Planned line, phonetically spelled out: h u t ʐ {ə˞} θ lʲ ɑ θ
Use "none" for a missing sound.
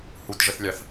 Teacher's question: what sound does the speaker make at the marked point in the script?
ə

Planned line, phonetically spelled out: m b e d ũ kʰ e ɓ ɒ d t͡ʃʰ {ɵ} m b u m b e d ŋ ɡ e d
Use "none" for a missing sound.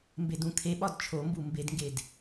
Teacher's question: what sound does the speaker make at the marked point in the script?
o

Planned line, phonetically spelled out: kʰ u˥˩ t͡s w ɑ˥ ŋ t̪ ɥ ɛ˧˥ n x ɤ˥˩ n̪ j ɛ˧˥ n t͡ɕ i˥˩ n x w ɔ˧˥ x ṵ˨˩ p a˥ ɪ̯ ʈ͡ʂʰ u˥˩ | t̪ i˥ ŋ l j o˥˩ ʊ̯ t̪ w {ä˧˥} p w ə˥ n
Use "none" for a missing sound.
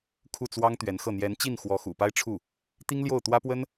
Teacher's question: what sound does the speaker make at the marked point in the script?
ä˥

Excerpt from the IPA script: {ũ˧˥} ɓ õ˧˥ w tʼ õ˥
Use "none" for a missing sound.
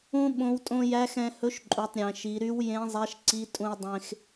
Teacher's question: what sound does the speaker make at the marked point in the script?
ũ˧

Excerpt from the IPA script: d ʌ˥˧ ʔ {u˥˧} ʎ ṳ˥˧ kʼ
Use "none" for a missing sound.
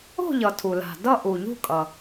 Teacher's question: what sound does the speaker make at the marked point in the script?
u˩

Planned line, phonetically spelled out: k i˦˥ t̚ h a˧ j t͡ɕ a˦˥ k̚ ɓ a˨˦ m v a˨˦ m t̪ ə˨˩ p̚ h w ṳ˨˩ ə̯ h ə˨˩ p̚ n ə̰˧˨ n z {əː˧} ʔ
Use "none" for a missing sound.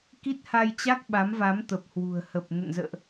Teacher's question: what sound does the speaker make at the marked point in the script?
ə̰ː˧˨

